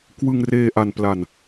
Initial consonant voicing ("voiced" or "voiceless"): voiceless